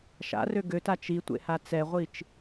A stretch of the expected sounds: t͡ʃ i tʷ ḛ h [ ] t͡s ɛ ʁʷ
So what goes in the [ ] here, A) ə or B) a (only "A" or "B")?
B